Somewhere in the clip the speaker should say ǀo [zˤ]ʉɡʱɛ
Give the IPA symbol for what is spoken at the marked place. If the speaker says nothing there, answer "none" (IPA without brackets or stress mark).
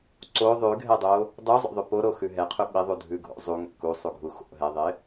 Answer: ðˤ